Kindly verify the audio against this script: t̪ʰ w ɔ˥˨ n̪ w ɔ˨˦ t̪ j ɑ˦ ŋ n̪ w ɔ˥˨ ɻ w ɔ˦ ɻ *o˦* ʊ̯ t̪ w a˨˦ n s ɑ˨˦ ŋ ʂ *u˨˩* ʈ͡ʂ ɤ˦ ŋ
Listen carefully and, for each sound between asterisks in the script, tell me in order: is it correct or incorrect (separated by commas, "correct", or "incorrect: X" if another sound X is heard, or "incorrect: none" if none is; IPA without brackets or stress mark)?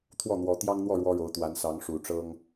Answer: incorrect: o˨˦, correct